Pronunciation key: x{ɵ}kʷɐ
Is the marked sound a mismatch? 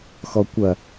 yes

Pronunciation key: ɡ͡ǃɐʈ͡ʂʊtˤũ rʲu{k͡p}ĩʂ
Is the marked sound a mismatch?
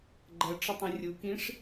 yes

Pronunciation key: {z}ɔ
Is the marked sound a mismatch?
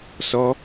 yes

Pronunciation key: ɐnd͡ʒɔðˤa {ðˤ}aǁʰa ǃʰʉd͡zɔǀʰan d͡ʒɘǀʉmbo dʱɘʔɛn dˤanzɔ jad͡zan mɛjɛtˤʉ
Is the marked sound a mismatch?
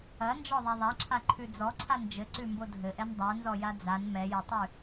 no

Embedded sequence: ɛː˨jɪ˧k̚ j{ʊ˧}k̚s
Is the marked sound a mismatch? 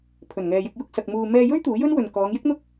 no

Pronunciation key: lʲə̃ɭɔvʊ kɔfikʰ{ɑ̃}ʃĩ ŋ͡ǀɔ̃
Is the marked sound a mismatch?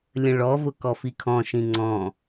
yes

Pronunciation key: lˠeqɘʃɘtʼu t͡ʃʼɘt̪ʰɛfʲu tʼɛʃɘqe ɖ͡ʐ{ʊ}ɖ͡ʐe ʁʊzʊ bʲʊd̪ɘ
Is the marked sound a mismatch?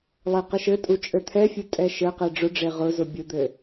no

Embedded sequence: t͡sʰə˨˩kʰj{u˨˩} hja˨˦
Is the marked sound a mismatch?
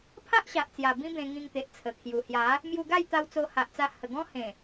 no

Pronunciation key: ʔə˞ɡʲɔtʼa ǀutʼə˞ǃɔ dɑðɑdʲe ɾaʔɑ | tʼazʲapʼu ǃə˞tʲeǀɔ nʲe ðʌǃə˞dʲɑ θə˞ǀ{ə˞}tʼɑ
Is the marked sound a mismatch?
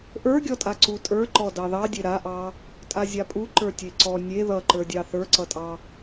yes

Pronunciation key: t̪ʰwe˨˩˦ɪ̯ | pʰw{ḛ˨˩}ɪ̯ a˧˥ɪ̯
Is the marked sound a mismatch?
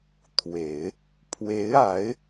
yes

